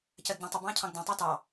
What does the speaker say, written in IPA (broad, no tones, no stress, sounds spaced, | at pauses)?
c ɜ d ɟ æ̃ tˤ ʌ b ɑ̃ː cʰ ɑ̃ ɡ d æ̃ tˤ æ t ɑ